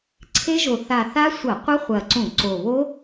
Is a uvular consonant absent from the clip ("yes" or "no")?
no